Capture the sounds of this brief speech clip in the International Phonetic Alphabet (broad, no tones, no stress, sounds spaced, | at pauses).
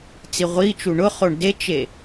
t͡s i ʁʷ i t͡ʃ u ɳ ʊ χ o ɳ d e t͡ʃ e